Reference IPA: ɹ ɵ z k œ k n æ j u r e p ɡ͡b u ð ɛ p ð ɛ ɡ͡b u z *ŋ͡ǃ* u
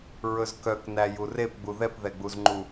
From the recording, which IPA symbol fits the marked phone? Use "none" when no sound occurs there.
ŋ͡ǃ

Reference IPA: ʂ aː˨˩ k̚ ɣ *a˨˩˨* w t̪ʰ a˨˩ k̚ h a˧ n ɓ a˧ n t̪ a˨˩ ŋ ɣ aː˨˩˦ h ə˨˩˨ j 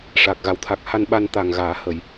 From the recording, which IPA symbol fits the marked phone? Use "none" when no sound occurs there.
a˨˩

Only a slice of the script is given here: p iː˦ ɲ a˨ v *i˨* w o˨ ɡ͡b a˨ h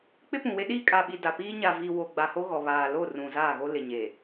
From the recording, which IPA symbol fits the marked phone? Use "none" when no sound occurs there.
i˨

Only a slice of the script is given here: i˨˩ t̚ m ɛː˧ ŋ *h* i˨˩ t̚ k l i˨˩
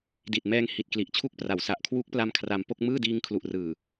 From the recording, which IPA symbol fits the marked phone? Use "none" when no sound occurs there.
h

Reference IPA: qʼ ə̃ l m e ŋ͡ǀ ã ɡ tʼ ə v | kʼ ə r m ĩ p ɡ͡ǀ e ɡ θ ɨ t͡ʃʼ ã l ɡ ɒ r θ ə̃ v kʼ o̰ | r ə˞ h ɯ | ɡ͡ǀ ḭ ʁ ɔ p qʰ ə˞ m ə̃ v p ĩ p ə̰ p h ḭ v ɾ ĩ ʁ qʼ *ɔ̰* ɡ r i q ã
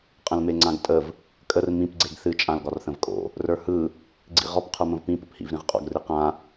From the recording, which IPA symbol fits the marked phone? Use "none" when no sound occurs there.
ɔ̰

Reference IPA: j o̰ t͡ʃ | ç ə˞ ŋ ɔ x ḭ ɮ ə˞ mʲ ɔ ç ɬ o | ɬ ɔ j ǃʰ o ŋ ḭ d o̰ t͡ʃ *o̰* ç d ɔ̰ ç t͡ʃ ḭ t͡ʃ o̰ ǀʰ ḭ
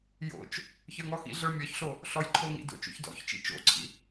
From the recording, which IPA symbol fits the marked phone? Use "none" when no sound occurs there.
o̰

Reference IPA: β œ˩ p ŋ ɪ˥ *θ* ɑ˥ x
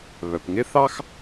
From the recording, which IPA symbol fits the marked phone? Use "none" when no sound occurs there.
θ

